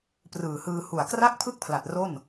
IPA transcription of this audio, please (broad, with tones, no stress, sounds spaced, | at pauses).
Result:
p r ɯː˨˩ h ɯː˧ h u˨˩ a̯ k r a˥˩ k̚ pʰ ɯ˥˩ k̚ pʰ l a˨˩ t̚ r o˥˩ n